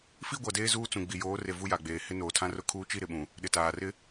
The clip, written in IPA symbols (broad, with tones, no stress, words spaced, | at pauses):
fi˦ɡʷa˨ deː˦zuː˦t͡sũ˨ ɡ͡bi˨joː˨˦re˨ vu˦ja˨ɡ͡beː˨ hɪ˦noː˨tʰã˦ rʊ˦kʰuː˦ t͡ʃi˦ɾɪ˨ɓũ˨ | ɗɪ˨taː˨rɪ˦